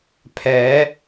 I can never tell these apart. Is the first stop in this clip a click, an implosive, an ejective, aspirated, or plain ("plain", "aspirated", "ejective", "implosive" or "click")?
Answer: aspirated